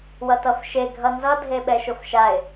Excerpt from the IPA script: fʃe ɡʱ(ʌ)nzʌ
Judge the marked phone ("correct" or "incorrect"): correct